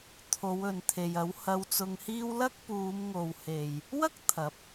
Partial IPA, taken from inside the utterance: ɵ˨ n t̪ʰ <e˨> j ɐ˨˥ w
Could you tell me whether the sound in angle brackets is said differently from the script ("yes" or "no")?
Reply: no